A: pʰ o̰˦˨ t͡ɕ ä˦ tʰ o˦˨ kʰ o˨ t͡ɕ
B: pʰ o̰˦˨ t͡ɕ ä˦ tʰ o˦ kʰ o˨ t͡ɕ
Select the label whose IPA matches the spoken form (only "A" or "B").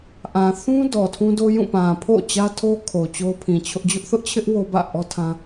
B